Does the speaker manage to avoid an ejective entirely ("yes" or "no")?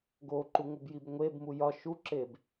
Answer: yes